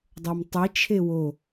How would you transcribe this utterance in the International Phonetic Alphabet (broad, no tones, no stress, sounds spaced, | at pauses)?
dˤ ɤ m tˤ i t͡ʃʰ e w o